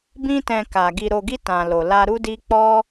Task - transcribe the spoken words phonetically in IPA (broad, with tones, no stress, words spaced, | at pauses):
bĩ˧tɛ̃˨ ka˨ ɡi˨ɾo˨ɡi˧ tã˨lo˨ la˧ɾu˦di˦ k͡pɔ˦